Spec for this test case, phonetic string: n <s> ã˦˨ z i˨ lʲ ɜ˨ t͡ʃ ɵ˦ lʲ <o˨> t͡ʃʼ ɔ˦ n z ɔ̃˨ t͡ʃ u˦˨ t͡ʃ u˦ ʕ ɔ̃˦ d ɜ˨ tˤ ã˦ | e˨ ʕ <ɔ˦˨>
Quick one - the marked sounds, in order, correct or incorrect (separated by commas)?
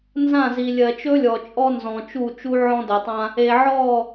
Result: incorrect, incorrect, correct